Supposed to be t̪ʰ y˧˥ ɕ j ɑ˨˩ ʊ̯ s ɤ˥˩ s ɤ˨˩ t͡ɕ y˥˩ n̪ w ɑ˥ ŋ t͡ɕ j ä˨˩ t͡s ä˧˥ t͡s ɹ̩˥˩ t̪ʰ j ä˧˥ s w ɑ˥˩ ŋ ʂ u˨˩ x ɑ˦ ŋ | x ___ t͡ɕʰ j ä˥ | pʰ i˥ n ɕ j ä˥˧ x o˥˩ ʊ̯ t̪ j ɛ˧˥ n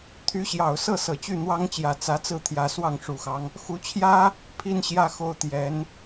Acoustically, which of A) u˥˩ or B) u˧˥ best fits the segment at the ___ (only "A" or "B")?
B